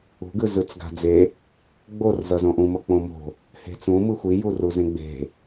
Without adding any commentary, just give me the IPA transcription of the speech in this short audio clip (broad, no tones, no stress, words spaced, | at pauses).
ṳɡɯ zɯt͡sɡa̤d͡ze | ɡ͡borzʌzõ ʔũ mʌk͡põmo̤ | he̤t͡sũ mɯxʷi juruzẽɡ͡be̤